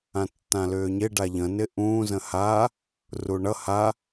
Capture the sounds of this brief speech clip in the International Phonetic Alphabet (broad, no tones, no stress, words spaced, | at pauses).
ãtːãlʏːɲɪ ɖaʎə̃ nɪʔũː zə̃ha | ruɳʌ ha